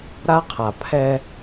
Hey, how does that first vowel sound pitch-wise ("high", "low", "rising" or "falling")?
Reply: high